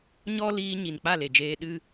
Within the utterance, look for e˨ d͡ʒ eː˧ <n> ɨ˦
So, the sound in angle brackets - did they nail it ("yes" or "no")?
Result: no